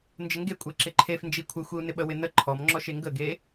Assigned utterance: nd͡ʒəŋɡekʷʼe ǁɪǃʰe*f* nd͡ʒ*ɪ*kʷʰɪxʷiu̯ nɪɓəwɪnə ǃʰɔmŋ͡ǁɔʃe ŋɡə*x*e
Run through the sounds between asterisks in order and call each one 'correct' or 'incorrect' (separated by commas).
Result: correct, incorrect, incorrect